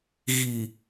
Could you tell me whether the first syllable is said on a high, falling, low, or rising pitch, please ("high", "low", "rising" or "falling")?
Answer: low